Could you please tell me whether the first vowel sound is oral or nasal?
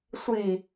oral